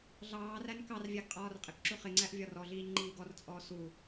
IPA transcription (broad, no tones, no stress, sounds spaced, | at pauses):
ɮ ɑː r æ n k ɑ r vʲ æ ɡ qʼ ɒː r qʼ ɪ k ǁ u χ ɪ ŋ͡ǀ æ ʔ vʲ ɒ r ɔ ɮ iː ɲ ŋ͡ǃ iː ɡ ɔ r t͡sʼ ɔː s u